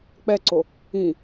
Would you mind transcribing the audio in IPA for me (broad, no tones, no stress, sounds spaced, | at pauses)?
k͡p ɛ ǀ o | ĩ